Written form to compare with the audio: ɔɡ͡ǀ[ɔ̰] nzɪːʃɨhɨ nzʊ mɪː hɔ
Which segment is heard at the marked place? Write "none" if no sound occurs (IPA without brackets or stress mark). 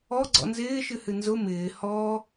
ɔ̰